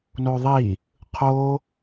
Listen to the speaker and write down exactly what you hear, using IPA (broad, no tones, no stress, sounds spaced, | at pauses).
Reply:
n o ðˤ i | qʰ o